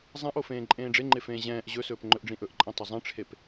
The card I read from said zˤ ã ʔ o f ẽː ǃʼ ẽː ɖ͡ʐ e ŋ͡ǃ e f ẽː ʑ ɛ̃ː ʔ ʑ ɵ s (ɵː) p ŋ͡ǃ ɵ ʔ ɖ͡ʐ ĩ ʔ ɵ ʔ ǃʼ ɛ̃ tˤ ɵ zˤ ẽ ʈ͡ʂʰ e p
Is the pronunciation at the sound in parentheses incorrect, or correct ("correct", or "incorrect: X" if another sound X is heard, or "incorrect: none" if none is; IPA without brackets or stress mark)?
correct